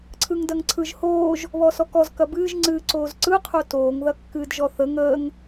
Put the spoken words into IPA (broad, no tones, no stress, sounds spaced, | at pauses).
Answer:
ǀʰ ɯ ŋ d ɐ ŋ ǀʰ ɯ ʒ h oː ʒ | β ɔ s ɔ k ɔ z k ɐ b ɨː ʒ ŋ͡ǀ ɨː ǀ oː z ǀ ɯ qʰ o t oː ŋ ð ɐ kː ɨː d ʒ ɔ θ ə ŋ əː ŋ